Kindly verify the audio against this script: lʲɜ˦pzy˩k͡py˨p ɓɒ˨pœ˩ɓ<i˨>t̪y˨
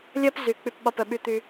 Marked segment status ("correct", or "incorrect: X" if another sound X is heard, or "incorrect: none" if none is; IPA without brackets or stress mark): incorrect: y˨